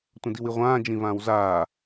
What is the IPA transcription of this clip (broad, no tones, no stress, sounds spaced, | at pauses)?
tʷ ə̃ d i w i ʁʷ ãː d͡ʒ ĩ v ãː w z aː